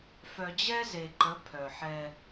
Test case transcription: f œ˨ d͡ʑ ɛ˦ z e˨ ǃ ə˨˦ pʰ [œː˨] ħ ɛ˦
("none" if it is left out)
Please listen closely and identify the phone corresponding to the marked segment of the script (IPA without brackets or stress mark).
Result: œ˨